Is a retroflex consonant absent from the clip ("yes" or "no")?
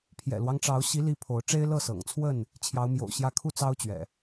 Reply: no